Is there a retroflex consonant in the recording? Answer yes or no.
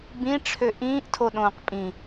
yes